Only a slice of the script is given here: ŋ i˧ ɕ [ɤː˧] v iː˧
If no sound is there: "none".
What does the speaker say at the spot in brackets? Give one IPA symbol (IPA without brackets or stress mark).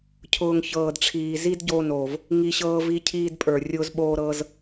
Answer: ɤː˧